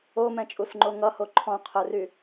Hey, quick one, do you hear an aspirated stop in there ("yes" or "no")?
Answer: yes